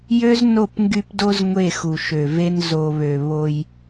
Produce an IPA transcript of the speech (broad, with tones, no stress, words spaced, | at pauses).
jø˦z no˦˨pŋɡy˦pdo˦z ŋʷe˦˨xu˨ʃø˨ve˦n zo˨βø˨ βo˦j